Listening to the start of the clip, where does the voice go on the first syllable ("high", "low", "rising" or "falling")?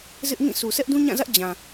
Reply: high